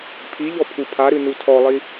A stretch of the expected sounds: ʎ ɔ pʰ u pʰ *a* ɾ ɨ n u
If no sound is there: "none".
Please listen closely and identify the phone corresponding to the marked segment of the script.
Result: a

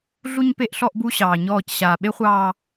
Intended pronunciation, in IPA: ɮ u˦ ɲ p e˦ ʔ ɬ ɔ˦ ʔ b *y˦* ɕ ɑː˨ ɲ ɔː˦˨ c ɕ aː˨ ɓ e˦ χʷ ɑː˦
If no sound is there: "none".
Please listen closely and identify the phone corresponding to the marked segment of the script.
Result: u˦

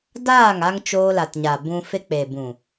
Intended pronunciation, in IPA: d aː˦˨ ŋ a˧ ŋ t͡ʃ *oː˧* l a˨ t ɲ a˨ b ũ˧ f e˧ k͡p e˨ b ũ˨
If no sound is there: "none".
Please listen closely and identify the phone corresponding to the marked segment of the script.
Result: oː˧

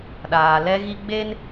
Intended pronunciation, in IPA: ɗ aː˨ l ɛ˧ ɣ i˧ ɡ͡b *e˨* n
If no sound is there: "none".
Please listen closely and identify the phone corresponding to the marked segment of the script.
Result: e˦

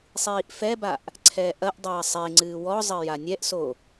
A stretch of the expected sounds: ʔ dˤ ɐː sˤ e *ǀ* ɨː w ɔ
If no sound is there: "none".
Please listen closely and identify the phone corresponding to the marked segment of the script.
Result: ŋ͡ǀ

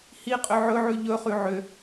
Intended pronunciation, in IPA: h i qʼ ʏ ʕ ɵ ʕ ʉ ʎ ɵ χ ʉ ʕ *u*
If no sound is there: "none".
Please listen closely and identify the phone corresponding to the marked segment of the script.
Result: ʏ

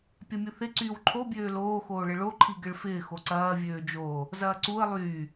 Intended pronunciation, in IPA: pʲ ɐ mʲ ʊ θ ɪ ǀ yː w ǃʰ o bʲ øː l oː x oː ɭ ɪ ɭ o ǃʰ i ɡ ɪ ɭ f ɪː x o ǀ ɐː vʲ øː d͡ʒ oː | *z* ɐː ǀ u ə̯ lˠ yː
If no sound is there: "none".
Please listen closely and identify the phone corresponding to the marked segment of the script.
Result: z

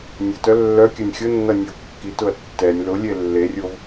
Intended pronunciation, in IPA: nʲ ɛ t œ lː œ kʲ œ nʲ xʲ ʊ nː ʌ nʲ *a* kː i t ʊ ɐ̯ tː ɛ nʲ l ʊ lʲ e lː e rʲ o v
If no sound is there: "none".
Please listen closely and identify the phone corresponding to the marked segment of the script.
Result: ʌ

